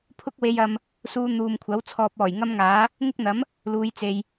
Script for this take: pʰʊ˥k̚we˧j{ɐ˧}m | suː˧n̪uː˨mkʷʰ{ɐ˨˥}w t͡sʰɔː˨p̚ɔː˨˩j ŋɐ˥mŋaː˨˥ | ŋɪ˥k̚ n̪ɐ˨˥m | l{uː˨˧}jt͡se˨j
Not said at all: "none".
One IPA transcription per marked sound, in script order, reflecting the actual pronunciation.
ɐ˧, ɐ˨˥, uː˨˧

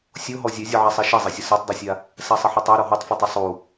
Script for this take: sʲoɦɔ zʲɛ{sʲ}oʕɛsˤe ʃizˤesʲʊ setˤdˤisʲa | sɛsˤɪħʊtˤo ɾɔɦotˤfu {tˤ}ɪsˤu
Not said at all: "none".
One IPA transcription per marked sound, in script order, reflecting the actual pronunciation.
zʲ, tˤ

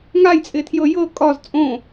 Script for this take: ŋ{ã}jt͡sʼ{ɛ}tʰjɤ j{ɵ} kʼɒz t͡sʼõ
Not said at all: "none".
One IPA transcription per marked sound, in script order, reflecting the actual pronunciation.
a, ɪ, ɤ

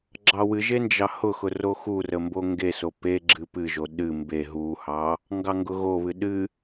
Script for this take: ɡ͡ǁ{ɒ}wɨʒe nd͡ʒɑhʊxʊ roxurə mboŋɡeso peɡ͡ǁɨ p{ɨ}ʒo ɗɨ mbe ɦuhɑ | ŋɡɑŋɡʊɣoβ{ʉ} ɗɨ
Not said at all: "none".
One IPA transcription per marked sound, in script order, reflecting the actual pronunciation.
ɑ, ɨ, ɨ

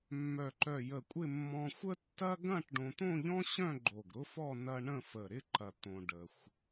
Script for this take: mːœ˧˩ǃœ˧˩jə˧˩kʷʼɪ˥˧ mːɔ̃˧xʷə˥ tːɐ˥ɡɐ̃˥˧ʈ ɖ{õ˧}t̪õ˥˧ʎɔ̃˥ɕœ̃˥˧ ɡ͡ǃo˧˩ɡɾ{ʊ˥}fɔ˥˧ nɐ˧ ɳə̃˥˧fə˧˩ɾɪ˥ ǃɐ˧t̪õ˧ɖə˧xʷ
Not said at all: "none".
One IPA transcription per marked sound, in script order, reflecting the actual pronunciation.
õ˧, ʊ˥

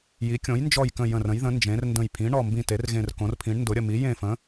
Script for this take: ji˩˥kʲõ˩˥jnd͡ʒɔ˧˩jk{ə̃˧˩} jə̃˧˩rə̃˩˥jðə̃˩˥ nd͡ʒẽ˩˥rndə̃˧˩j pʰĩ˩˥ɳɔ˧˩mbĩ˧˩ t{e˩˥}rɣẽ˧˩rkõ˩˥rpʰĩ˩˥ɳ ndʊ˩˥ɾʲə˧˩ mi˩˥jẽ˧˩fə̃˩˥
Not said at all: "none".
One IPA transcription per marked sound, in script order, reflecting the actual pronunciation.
ə̃˧˩, e˩˥

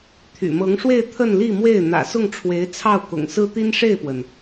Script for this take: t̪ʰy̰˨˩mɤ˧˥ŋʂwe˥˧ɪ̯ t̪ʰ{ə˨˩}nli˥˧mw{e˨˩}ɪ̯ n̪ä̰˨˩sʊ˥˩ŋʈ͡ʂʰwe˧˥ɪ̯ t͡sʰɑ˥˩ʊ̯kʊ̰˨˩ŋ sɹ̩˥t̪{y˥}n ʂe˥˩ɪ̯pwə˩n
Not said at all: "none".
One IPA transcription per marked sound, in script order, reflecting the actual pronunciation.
ə˥˧, e˥˩, i˥

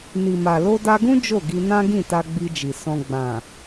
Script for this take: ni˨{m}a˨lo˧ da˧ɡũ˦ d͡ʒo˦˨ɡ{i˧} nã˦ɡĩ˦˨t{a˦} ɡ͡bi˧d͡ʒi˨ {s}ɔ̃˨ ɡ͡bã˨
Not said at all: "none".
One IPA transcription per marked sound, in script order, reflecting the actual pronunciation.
m, i˧, a˧, s

